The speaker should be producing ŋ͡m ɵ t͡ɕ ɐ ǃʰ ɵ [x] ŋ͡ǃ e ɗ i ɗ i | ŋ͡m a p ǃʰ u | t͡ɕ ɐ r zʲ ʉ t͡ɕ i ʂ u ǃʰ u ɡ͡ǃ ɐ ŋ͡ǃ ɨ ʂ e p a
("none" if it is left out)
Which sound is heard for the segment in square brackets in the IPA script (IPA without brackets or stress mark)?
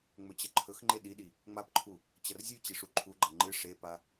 x